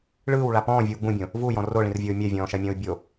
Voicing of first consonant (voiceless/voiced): voiced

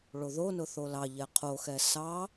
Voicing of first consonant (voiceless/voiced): voiced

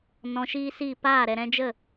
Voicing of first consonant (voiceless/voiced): voiced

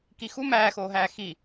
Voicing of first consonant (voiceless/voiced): voiceless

